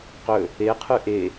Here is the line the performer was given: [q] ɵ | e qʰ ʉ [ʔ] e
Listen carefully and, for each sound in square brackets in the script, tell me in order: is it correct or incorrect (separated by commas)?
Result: correct, correct